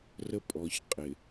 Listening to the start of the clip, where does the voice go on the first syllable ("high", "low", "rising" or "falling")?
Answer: high